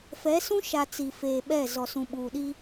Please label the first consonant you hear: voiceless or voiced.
voiceless